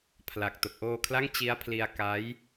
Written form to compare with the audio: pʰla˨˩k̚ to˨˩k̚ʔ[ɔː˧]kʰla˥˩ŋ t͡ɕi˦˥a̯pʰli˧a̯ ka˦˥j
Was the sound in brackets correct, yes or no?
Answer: no